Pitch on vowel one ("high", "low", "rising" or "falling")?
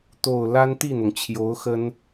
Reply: low